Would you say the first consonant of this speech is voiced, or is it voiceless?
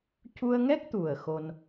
voiceless